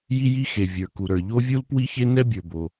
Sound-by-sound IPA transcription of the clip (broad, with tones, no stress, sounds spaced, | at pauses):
j i˥ j i˥ x e˩ vʲ ə˞˩ k u˩ ɾ ə˞˩ ʎ o˥ vʲ u˥ l p w i˥ ç e˥ n ɛ˥ bʲ ə˞˩ b o˩